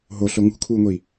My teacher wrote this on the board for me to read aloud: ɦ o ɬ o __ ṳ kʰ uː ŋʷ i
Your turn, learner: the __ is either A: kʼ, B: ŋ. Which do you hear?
B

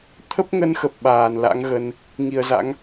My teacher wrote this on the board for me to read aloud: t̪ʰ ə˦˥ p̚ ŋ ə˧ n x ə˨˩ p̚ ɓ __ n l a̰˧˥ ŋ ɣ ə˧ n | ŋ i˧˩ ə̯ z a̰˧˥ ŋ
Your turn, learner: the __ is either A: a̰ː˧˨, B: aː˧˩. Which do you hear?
B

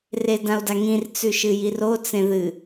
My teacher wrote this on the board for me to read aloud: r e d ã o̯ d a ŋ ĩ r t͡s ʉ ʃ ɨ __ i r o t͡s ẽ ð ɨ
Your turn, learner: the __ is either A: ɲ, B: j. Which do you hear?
B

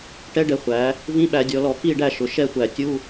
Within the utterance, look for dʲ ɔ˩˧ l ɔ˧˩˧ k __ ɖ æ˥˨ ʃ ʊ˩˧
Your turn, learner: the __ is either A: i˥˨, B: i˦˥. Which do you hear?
A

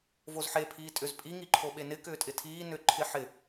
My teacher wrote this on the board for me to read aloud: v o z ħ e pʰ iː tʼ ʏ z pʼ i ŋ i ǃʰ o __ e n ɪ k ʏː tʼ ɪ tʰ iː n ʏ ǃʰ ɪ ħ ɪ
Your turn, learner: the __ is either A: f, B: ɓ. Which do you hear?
B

